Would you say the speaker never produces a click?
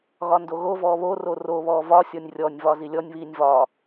yes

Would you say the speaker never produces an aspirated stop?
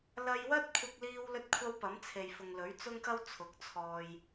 no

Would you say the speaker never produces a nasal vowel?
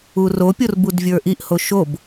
yes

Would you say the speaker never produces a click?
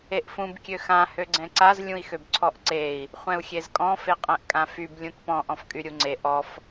no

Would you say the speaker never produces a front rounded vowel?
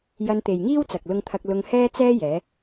yes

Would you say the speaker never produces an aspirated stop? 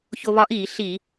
yes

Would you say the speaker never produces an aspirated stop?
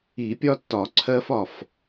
no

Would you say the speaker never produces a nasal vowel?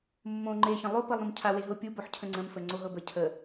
no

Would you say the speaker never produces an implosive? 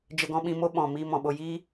no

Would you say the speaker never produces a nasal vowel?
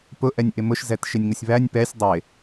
yes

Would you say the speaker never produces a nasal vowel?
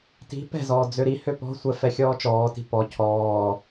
yes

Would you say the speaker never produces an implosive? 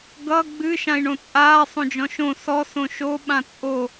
no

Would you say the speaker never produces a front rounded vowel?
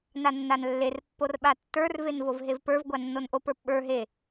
yes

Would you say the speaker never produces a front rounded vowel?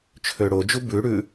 no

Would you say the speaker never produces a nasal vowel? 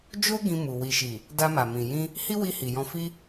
no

